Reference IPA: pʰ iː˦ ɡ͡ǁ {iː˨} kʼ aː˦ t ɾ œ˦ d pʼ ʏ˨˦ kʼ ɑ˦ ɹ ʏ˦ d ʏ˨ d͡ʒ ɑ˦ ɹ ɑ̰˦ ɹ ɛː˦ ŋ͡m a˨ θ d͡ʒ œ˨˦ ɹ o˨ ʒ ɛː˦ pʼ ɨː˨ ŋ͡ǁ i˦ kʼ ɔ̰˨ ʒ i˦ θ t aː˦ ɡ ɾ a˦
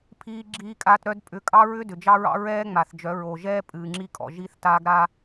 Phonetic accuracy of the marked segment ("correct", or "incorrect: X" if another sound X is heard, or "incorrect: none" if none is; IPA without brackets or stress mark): incorrect: iː˦